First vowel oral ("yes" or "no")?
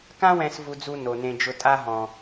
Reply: no